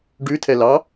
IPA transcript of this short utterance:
ɖ ʉ tʰ ɛ l ɑ

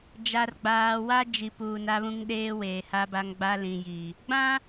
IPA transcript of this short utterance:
d͡ʒ a˨ r ɡ͡b aː˨ w a˦ d͡ʒ i˨ p uː˨ n a˦ β ũ˦ ŋ ɗ eː˦ w eː˨ h a˦ b a˦ ŋ ɡ͡b a˦ l ĩ˨ j i˨ | ɡ͡b ã˦

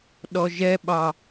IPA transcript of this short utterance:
ɗ ɔ ʒ ɛ ɓ ɑ

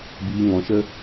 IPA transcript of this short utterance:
b iː˧ ŋ ɔ̃˧ ʃ ə˦

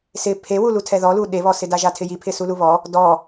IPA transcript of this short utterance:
s ɪ pʰ e w u l u tʰ ɛ ð ɔ l u ɗ e β ɔ s ɪ d a ʒ a tʰ ɪ j i pʰ ɪ s u l u β ɔ | d ɔ

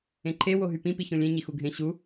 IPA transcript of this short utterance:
ẽ ǃʰ e w o ɦ y p ĩ p i ç õ lʲ ẽ ɲ i x u ɡʱ ẽ ɕ u

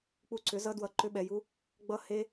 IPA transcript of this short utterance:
k͡p u˧ ǀ ʏ˨˦ z ʌ˦ d w ʌ˧ ǃ ʏ˦ ɓ ɛ˧ j u˦ | ɡ͡b ʌ˦ h e˦

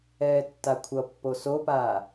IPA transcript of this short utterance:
ɛː tː a kʷʰ ʌ pː o s o p aː

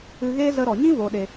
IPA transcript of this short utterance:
ɨ˧ ɣ eː˦ z ə˧ ɾ ɔ˨ ɲ ĩ˦ v o˨ ɗ e˨

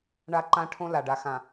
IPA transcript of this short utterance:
ɳ a˦ ǃ ã˦ ʈʰ õ˦ l a˨ ɖ a˨ x ã˨

